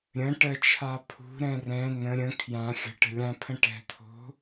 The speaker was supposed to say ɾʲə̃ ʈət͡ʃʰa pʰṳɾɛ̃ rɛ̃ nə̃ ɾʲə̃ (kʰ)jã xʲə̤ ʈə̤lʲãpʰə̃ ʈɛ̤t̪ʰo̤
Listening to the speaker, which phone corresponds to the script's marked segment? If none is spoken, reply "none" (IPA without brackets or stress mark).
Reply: kʰ